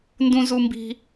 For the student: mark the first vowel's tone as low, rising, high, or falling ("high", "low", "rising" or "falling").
high